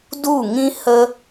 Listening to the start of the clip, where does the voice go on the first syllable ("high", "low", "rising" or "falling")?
falling